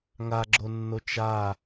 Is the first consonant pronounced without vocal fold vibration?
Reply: no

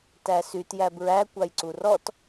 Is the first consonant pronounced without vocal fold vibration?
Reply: yes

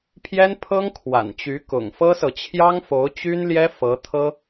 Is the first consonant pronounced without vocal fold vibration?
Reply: yes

